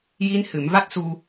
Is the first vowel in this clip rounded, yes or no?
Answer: no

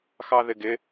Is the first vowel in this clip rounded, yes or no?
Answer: no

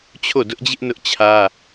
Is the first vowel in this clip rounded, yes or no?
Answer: yes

